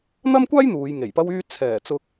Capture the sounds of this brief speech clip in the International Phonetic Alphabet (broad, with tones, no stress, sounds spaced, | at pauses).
n̪ ɐ˥ m kʷ aː˥ j n̪ uː˨˧ j ŋ e˨˩ j p ɐ˥ w yː˧ t͡sʰ ɛː˨˩ t͡s ʊ˧ k̚